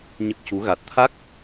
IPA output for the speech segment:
ɲə˦˥k̚cu˧˥ ɣa˨˩t̚t̪ʰa˦˥k̚

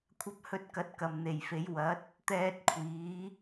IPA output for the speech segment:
kʷʰɐ˧p̚hɵ˧t̚kɐ˨˥t̚ kɐ˨mn̪e˨jfe˨˧j wɐ˨˥t̚ | t̪ɛː˧t̚kʷʰiː˨˧

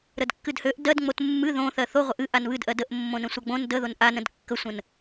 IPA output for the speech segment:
ɾədkːɨdhøʔ dɜdŋ͡mot mːɨ ðõθɜ θoʁʷəʔ ɨ ʔanβɨdʔɜ dəʔ mːõnə̃sʷaɡ͡bõn dəðon ʔanə̃d kːəsʷə̃n

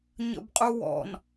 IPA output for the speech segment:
ɲə̰bqʼuwɔ̰n

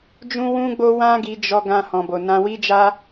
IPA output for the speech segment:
d͡ʒũ˦wũ˦ɡ͡bo˦ wã˦ɡi˧d͡ʒɔ˧ ɡã˧hɔ̃˨bo˨ nã˧wi˦d͡ʒa˦

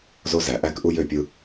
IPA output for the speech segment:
zo˦zæ˨ ʔæ˦kʔu˦j ø˦˨pʲɯ˦

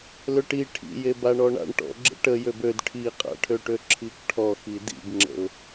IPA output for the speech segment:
løʈi ʈʰḭje baɳɔɳa̰ɳ ʈɔ̰ɡ͡ǁə̰ ʈə jøbød ʈʰiqʼa̰ʈʰøʈø ǁʰikʈʰɔ xidḭbŋ͡ǁə̰ʊ̯

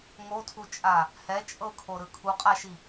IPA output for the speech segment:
ŋotʰut͡ʃʼa | hɛ t͡ʃʼɤkʰoɾɯ kʰuqʼaʃi

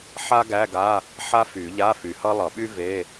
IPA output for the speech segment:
ħa˥ɡæ˧˥˧ɡa˧˥˧ | ħa˥fy˨˩˦ ʎa˧˥˧fy˨hʌ˥ lˠʌ˨˩˦ɓy˥ ve˧˥˧

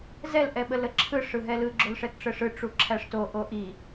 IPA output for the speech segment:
zɛl ʔɛɓələǁʰɯ ʂɯɦɛlɯ ɡ͡ǁolʂɛtʈ͡ʂəʂɯ ʈ͡ʂuǁʰæʂto ʔoʔi

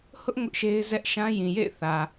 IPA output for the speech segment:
hʊ˦ʔ ŋʊ˦ʔʃe˦ɪ̯zɛ˦ʔ ʃã˦jĩ˨jḛ˦˨ɪ̯ θä˨

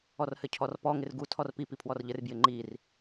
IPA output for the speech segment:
ɔrhɘcʰɔrpɔ ŋɪrɡu tʰɔrpi pipʰwɔrʎɘr bjɪŋ͡ǃir

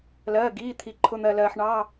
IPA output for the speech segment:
lɜː˩˧˩ɡiː˩˧˩t̪ʰi˩ ǃʰʊ˩˧˩n̪ɜ˩lɜː˩ħ ɳɑ˩˧˩

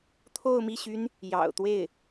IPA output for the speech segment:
t̪ʰo˥˧ʊ̯mi˥˩ɕy˥n | jɑ̰˨˩ʊ̯t̪we˥˩ɪ̯

